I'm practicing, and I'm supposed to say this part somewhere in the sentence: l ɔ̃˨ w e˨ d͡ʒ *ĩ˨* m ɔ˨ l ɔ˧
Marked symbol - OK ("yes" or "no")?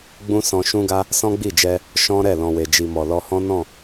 no